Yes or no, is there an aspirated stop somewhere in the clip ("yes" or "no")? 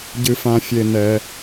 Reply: no